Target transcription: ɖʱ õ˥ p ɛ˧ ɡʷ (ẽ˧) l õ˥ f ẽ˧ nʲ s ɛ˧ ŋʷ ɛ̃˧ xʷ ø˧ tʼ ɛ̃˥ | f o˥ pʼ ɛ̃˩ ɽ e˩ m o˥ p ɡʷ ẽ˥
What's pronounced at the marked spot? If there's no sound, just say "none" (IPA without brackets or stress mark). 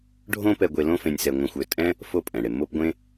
e˧